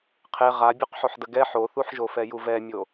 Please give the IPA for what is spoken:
qʰe ʁa bʲoqħoħdəɡɛ ħoθuħʒofɛ juvɛmʲo

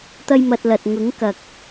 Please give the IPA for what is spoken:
t̪ɐ˥jmɐ˧t̚lɐ˨t̚ ŋʊ˨˥ŋkɐ˨k̚

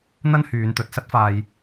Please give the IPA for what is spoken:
n̪ɐ˥nhyː˨˧nt̪ɵ˨t̚ sɐ˥t̚faː˧j

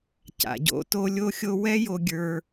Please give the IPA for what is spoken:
ca̰˩ɟo̰˧to˧ lʲo˥xʲo˥ wɛ˥jo˧ɡʲə˞˧

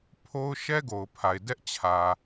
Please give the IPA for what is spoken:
pʰo˦ʊ̯ ʃɛ˦ɡo˨ʊ̯pʰa˨ɪ̯ dɛ˦ʔt͡ɕʰä˨

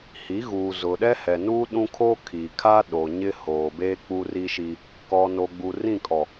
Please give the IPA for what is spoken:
hi˨˦ɣuː˨ zʊ˨ɗɛ˦ hɛ˨nuː˦ɗũ˦kʰoː˦ kʰi˨kʰa˦ ɗo˨ɲɪ˦hoː˨beː˦ k͡pu˦ri˦ʃi˦ | kɔ˨no˨ ɡ͡bu˨rĩ˦˨kʼɔ˨

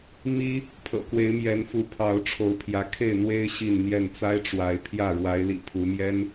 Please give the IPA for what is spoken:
mi˦ | pʰɤ̰˨˩kwe˨˦ɪ̯mjɛ˨˦nfu˨˦ pʰɑ˨˦ʊ̯ʈ͡ʂʰo˨˦ʊ̯pʰjä˨˦ kʰe˥˨ɪ̯n̪we˦ɪ̯ ɕi˥˨nn̪jɛ˥˨n t͡sa˦ɪ̯ʈ͡ʂwa˨˦ɪ̯ pʰjä˥˨ ɻwa˨˦ɪ̯lḭ˨˩ pʰu˨˦mjɛ˦n

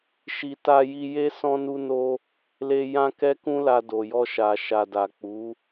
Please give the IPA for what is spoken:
ʃi˨ta˧ji˧ je˦ sɔ̃˦nu˦no˦ | le˧ jã˦ kɛ˦kũ˦la˧ do˨jɔ˧ ʃa˨ ʃa˨da˨k͡pu˨˦

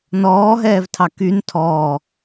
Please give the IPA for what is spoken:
nɔːɦɛːvtʰɑ kyn tʰɔː

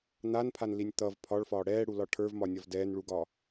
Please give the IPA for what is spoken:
n̪anpʰanlinʲ t̪ʌv pʰɒɭfɒː ɽɛːɽulɒ ʈʰə˞vmɒnʲɒv dɛːnɭuɡɒː

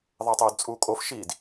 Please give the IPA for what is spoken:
ðˤɛtˤoːdt͡sʼuːkʼof ʃid

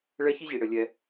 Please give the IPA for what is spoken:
ɭɛ˥çi˥ʑi˨ ɽɘ˩ lʲɛ˨

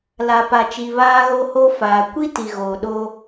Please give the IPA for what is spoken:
la˨pa˨t͡ʃi˨ βaː˦ɣo˦ho˦ faː˨ kʷi˦ti˨ɣoː˨ ɗoː˦

